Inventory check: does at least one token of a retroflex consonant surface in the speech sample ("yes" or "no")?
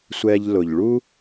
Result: yes